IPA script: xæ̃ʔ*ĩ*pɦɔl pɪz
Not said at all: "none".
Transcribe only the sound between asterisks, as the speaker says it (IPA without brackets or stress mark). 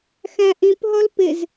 ĩ